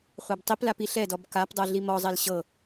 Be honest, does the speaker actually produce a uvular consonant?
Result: yes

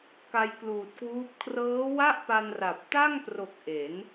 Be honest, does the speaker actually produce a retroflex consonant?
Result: no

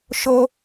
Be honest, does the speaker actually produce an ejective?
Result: no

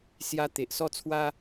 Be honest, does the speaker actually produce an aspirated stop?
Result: yes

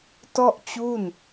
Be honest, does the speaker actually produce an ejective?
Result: no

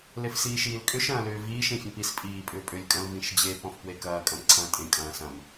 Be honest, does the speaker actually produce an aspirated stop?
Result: yes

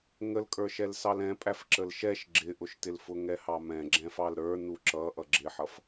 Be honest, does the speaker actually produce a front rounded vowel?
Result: no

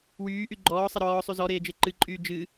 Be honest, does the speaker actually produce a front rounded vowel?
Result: yes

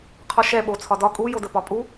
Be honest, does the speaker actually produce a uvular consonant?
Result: yes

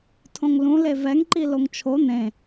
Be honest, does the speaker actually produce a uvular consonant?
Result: no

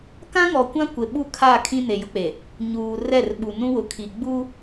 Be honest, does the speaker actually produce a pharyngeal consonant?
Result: no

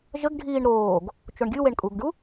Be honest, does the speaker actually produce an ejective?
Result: yes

